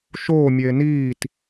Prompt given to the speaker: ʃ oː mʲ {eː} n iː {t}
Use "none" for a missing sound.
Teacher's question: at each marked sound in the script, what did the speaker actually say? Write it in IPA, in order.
eː, t

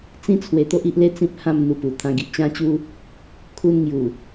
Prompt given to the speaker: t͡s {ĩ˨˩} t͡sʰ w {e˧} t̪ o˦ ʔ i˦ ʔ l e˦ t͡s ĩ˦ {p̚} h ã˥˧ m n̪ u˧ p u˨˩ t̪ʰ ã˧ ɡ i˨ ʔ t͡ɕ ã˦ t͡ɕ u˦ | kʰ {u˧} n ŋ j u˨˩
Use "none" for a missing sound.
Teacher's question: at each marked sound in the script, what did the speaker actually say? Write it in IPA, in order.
ĩ˦, e˧, p̚, u˧

